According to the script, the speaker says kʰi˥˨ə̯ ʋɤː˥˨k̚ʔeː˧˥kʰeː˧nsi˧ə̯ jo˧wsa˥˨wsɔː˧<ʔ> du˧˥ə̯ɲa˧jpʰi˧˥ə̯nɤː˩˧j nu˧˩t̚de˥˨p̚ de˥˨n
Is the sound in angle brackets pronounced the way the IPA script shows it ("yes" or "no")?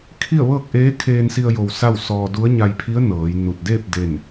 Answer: no